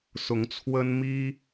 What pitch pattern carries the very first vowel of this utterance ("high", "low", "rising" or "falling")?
rising